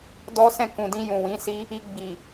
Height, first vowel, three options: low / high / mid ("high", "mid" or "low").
mid